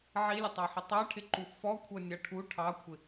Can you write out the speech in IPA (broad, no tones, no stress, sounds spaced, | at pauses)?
ʕ i lʲ ə tˤ ɑ ħ ə tˤ ɑ ʈʰ ɪ ǃ u f ɔ kʷʰ ʌ nʲ ʌ ʈʰ u ʈʰ ɑ kʷʰ ɪ